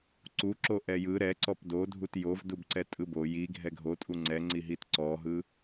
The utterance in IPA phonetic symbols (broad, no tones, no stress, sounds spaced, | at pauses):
ǀ u ǁ o ʔ ɛ j ɯ ɾ ɛ ǀ ɔ p d o dʱ u t j o v d u b ǀ ɛ tʼ ɯ b o j i ɡʱ ɛ ɡʱ o tʼ u ŋ͡ǀ ɛ ŋ͡ǀ i ɦ i t ǀ ɔ ɦ ɯ